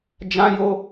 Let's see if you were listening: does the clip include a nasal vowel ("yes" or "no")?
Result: yes